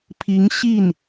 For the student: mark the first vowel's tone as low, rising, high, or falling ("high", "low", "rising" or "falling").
rising